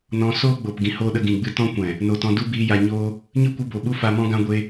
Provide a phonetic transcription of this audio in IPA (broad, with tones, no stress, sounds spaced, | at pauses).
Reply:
n ɔ̃˧ s oː˦ ɡ͡b o˨ p ɡ ĩ˧ h oː˦ ɗ ə˧ ɡ ĩ˨ ɡ͡b ɨ˧ t ɔ̃˦ kʷ ɛ̃˨ | n o˨ t ɔ̃˧ d u˦ b iː˧ j a˧ ɲ oː˦ | ɲ ɨ˦ kʷ ɨ˧ b o˨ ɓ u˦ f a˧ m ɔ̃˦ ɡ ã˦ ɡʷ e˦